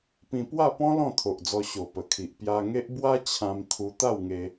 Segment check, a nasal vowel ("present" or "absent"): present